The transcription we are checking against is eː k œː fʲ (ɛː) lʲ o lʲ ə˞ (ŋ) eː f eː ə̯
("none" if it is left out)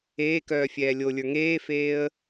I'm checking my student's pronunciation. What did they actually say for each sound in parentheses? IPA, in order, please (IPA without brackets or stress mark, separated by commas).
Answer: ɛː, ŋ